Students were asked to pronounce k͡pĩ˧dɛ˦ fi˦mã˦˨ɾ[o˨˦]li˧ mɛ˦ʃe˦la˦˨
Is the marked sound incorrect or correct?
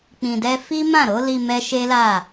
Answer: correct